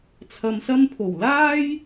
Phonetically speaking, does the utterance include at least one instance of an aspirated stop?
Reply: yes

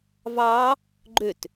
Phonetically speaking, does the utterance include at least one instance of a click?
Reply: yes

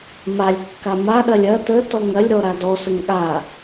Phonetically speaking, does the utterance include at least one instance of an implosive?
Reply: yes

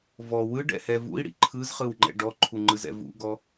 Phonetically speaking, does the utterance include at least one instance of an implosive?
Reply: no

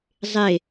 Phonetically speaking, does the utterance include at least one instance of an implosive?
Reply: no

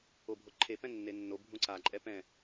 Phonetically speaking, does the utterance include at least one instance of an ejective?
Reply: yes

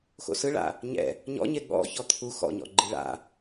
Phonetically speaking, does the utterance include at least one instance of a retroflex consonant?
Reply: yes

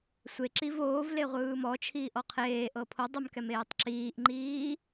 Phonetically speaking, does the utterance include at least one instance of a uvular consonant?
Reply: yes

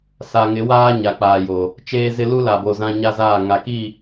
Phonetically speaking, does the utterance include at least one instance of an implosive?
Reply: no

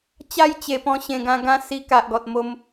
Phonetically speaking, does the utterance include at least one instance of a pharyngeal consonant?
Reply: no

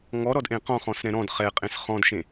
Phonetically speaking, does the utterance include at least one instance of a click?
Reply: no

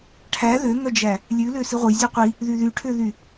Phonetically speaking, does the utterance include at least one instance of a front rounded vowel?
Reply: yes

